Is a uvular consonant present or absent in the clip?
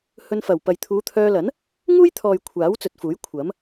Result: absent